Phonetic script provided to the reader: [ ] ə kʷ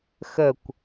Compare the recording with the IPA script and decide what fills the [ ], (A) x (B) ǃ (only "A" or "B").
A